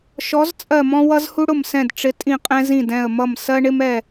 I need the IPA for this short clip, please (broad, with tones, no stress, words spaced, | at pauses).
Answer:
ʃɔ˨˥zt͡sʼɜ˧˩mɔ̃˦ wʌ˦zhu˦ɽʊ˧˩msɛ̃˧˩d ʈ͡ʂɪ˨˥tʼĩ˧˩qʼɛ̃˦ zĩ˧˩dɛ̃˧˩ə̯mʌ˧˩m sɜ˦ɳɪ˦mɛ˧˩